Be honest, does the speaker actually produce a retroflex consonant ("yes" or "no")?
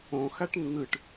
yes